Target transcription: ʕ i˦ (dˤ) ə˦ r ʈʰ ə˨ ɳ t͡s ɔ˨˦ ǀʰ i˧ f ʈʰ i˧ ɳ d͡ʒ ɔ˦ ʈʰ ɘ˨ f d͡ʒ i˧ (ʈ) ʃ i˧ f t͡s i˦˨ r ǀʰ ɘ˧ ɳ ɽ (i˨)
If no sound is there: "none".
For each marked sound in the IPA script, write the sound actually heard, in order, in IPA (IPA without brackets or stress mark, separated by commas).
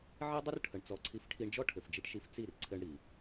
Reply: dˤ, ʈ, i˨